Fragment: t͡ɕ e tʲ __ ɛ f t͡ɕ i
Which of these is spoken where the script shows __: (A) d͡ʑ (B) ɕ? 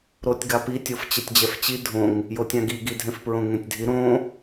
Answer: A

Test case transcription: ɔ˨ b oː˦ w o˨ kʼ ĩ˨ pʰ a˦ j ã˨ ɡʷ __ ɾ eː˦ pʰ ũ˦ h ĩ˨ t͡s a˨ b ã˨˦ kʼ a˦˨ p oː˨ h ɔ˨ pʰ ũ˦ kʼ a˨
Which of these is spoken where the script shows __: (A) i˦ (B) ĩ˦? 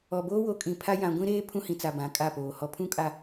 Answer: B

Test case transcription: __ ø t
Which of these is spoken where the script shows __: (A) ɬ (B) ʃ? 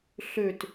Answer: A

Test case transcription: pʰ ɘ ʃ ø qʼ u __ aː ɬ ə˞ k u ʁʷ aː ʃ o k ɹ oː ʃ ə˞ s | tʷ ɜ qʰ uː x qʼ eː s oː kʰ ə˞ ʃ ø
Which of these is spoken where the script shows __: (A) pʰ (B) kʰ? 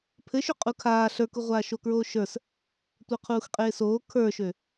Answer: B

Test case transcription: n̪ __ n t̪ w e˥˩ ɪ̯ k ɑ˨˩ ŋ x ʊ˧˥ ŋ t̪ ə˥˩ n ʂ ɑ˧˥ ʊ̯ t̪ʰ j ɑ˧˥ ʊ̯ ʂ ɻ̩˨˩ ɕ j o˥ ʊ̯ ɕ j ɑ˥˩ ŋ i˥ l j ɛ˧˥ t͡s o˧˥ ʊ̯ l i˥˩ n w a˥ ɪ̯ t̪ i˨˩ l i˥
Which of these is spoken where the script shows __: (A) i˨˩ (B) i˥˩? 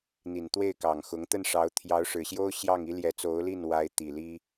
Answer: A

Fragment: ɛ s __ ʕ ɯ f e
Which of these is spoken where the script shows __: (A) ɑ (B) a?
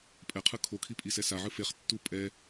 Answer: B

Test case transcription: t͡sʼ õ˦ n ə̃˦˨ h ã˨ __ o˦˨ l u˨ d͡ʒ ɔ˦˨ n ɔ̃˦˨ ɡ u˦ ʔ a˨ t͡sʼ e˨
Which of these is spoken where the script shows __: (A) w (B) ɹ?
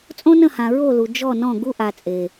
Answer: B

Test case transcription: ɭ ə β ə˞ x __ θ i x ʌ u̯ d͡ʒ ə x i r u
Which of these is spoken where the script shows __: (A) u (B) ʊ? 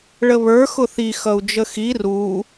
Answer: B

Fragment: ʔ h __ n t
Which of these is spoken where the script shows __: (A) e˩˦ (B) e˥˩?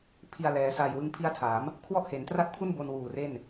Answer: A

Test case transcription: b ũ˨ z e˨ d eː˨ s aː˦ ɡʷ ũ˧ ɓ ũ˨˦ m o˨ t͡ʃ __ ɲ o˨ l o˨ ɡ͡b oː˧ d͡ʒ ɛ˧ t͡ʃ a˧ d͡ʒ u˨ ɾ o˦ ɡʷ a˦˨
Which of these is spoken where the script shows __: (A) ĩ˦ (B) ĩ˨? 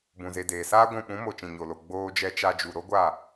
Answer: B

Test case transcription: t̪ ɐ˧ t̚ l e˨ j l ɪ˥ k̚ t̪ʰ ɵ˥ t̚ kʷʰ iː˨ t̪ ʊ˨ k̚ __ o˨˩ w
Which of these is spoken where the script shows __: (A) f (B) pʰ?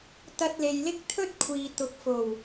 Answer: A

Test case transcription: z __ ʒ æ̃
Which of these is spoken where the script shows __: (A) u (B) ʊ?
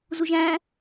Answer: A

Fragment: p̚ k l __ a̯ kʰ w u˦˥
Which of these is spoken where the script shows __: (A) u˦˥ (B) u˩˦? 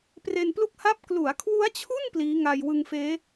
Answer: B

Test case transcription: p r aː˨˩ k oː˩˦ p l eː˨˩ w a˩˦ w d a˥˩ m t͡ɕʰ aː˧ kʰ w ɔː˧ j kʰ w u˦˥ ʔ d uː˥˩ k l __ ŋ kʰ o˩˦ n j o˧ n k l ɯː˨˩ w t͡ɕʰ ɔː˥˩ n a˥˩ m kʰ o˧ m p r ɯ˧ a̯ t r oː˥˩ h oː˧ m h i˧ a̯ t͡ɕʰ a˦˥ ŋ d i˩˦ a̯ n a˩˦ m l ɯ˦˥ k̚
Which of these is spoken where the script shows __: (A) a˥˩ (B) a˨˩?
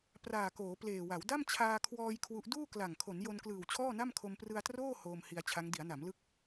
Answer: B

